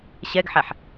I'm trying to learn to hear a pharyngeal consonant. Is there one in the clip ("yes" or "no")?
yes